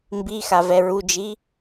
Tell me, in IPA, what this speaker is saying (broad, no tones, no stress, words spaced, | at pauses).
mbixa vɛɹud͡ʒi